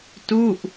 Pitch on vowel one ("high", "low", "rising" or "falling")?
falling